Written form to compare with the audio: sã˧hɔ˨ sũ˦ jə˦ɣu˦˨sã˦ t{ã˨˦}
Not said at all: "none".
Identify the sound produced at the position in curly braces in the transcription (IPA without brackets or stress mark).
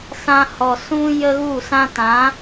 ã˨˦